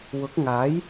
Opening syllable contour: rising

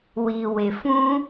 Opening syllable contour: low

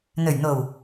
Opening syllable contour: low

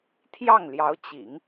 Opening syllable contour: falling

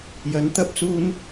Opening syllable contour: rising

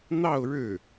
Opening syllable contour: falling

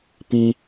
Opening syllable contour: high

